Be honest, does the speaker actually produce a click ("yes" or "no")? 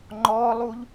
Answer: yes